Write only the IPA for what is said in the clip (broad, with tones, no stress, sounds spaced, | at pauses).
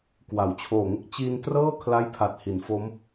k w a˩˦ w t͡ɕʰ oː˨˩ ŋ e˥˩ k̚ t͡ɕ i˧ n t r ɤː˥˩ kʰ l a˥˩ j pʰ a˨˩ t̚ h i˩˦ n f o˦˥ m